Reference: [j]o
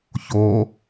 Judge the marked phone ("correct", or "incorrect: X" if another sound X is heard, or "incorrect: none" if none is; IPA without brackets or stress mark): incorrect: ç